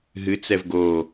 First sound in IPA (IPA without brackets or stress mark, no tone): ɦ